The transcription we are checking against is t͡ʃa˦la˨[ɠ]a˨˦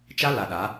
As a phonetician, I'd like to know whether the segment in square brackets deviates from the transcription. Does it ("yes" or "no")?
yes